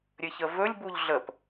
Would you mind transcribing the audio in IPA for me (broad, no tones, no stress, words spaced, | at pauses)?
ɾʲɘçəvɵlʲ buʎɮəp